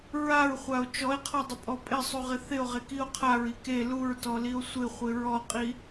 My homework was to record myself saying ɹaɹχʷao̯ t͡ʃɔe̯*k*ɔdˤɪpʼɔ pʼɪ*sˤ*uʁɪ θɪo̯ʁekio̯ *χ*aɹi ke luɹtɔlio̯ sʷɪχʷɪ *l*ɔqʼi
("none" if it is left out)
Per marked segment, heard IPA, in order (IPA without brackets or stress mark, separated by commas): qʰ, sˤ, qʰ, ɹ